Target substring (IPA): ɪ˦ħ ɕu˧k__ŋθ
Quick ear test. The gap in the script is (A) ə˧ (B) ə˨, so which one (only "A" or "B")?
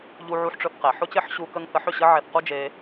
A